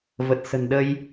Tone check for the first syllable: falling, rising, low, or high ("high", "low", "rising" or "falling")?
low